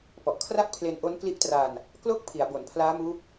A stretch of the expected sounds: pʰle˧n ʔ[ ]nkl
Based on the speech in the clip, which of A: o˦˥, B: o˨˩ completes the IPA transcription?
A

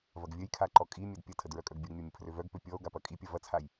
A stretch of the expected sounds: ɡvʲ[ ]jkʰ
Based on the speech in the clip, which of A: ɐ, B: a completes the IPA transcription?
A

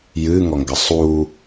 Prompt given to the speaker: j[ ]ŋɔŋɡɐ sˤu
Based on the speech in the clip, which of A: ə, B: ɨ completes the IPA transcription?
B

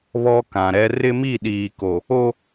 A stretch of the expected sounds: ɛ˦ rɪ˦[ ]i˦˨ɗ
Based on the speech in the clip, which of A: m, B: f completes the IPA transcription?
A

